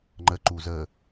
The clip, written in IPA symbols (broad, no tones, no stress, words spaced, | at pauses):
ŋ͡ǃə ǃuzə